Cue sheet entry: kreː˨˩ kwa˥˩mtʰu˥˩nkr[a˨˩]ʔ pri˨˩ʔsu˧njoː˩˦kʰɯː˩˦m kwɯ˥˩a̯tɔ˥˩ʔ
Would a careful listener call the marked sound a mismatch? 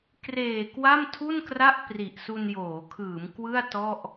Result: yes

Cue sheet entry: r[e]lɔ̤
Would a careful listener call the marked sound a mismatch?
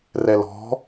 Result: yes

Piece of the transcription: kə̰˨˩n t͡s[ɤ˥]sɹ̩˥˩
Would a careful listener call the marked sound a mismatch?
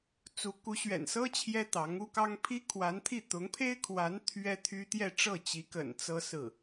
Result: no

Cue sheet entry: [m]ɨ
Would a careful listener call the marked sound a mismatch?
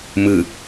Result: no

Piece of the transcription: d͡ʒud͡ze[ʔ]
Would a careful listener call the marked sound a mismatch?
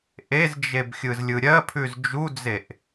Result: no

